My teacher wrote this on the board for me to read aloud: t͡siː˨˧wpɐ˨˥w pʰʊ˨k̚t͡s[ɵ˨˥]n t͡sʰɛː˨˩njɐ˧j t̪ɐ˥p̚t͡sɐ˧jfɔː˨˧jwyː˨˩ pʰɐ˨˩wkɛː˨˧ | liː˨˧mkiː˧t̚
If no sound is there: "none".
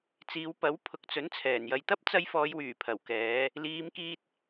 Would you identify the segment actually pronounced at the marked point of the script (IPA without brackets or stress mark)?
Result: ɵ˨˥